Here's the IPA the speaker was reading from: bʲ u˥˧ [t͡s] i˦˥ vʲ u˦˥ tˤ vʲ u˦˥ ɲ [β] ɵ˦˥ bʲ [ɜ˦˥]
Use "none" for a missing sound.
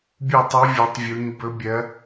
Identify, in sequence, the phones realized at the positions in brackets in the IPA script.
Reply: tˤ, b, ɜ˦˥

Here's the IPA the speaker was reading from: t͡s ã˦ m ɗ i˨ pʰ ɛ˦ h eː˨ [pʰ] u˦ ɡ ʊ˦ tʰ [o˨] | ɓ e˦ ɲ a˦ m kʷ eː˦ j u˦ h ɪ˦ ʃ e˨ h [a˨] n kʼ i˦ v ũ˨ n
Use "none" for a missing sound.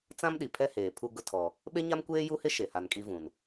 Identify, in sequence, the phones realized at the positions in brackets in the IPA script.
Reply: pʰ, ɔ˨, a˨

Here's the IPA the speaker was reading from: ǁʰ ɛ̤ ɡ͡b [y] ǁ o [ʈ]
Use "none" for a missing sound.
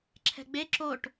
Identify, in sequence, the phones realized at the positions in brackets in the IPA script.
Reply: e, ʈ

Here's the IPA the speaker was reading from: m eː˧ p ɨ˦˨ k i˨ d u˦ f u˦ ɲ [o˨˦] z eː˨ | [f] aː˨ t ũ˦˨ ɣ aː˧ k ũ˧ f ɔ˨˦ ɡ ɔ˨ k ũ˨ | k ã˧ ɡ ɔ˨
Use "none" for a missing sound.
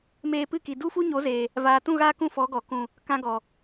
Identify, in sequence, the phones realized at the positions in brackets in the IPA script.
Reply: o˨˦, v

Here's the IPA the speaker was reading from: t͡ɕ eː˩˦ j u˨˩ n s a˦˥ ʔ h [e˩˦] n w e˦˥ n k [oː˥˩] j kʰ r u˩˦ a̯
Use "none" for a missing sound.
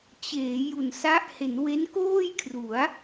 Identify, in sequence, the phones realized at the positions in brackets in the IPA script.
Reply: e˩˦, oː˥˩

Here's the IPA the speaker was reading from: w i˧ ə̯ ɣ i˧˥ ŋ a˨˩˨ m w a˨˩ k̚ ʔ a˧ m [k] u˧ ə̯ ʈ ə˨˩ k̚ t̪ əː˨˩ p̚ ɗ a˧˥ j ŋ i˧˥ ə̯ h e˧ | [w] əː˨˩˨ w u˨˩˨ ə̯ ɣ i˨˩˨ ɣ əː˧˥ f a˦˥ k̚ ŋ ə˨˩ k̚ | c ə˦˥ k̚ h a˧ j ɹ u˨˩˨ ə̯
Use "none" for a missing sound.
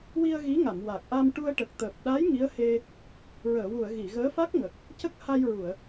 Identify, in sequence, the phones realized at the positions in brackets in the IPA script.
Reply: ʈ, ɹ

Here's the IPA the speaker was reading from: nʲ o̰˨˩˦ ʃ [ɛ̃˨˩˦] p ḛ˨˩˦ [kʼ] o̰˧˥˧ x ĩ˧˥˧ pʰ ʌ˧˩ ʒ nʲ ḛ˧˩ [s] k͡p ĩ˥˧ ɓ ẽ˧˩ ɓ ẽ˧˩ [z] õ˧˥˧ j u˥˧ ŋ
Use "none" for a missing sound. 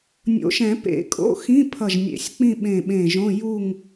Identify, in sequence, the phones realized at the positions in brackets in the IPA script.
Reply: ɛ̃˨˩˦, kʼ, sʲ, ʒ

